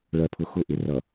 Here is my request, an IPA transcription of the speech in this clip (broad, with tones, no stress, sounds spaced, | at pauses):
ɭ ɜ˨ pʰ ʊ˨ x ʊ˦˨ ʔ ɪ˨ r ʌ˨